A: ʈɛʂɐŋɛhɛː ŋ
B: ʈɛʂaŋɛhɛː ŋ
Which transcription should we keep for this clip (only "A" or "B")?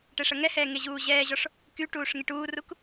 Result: A